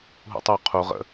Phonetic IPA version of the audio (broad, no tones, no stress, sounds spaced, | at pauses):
ɦ ṵ tˤ u qʰ u ʁ ə̰